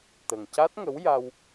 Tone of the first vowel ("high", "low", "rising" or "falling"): low